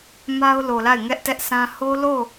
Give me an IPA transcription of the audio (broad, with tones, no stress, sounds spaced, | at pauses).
m a˦ ʊ̯ l o˨ l a˦˨ ɪ̯ ŋ ɛ˦ ʔ t ɛ˦ ʔ sʰ ã˦ h o˦ l o˦˨